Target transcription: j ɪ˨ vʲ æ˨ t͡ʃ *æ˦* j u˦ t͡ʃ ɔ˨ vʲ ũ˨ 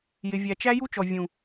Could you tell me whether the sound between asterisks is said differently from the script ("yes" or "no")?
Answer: no